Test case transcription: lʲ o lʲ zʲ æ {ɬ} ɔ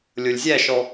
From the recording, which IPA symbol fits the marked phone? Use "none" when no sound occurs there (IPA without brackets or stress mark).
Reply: ʃ